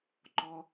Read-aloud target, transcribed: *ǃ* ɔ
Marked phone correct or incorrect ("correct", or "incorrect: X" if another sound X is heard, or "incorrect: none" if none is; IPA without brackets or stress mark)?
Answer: correct